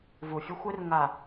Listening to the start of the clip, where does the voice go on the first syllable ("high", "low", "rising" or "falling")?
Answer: low